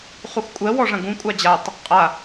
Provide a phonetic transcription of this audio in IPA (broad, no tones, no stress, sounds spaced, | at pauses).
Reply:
χ u x kʷʼ ɜ w ɔ ʐ ɐ̃ ɡ ũ kʷʼ a d͡ʑ a tˤ | qʼ a